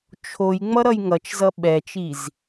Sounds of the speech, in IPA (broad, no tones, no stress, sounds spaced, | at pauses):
t͡ʃʰ o j ŋ͡m ʌ ɾ ʌ j ŋ ʌ t͡ʃ z ʌ ɓ ɛ t͡ʃ i z